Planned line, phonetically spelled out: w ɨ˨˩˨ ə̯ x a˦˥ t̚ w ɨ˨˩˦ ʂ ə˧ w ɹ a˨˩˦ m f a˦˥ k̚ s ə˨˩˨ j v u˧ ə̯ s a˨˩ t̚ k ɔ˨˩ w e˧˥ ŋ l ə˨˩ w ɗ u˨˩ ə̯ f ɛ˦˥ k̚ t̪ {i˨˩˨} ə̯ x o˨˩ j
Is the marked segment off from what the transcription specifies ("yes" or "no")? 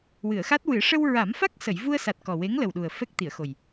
no